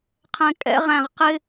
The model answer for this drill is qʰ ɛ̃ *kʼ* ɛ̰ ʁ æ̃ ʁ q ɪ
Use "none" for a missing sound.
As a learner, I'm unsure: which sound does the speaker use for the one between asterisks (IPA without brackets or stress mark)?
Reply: kʼ